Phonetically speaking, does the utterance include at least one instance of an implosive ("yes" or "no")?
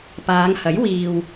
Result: no